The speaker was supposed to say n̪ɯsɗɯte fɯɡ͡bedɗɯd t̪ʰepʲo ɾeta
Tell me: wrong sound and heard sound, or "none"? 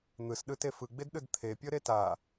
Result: o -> ɤ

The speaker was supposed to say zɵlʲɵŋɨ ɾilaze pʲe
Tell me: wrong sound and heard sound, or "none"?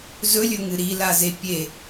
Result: none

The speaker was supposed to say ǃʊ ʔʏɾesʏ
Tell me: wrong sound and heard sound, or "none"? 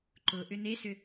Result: ɾ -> n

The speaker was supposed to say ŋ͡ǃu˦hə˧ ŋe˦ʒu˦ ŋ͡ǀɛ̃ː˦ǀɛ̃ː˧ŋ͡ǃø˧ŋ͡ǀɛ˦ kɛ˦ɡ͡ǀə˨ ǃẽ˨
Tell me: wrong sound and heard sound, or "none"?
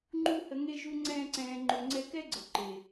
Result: ẽ˨ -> e˨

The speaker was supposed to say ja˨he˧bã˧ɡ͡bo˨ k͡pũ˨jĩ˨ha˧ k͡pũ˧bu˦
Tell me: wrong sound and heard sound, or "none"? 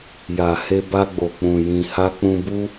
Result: ã˧ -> a˧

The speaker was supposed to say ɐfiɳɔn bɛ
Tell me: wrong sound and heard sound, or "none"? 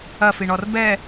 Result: n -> r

